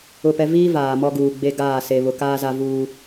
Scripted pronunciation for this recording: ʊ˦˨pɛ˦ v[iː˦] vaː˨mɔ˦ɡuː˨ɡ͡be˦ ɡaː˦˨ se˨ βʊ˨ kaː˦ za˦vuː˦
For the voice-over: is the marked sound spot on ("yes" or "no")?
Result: yes